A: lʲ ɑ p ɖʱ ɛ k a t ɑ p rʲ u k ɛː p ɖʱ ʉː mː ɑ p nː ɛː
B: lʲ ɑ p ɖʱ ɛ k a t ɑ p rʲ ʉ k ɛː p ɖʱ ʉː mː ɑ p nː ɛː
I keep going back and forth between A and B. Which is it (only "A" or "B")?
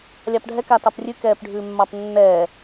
B